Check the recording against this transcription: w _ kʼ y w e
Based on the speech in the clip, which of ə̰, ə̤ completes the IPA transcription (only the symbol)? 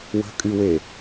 ə̤